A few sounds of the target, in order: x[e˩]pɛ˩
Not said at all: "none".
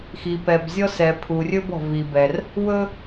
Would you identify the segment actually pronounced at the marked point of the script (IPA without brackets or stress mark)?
i˩